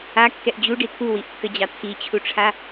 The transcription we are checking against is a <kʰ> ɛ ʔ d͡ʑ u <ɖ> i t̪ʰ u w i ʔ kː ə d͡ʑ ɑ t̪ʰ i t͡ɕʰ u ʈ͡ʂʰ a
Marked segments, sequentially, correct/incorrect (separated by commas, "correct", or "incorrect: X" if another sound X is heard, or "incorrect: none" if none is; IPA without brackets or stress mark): incorrect: kː, correct